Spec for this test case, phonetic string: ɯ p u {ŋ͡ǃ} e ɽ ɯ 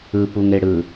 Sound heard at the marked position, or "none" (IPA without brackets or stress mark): ŋ